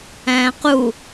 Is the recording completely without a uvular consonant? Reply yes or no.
no